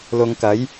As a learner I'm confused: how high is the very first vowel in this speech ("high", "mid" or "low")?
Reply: high